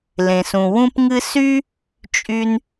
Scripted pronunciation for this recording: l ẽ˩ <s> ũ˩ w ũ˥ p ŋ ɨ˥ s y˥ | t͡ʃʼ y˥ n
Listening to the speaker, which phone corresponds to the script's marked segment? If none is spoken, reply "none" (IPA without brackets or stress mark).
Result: s